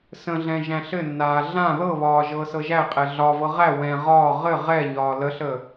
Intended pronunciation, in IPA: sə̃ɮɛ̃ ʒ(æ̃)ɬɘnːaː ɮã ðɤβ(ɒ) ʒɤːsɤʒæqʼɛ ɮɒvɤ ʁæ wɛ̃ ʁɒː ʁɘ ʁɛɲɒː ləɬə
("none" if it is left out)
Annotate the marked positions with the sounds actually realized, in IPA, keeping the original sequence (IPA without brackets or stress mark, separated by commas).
æ̃, ɒː